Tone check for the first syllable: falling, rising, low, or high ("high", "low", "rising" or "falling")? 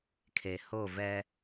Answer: low